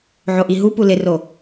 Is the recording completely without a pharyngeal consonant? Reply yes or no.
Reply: no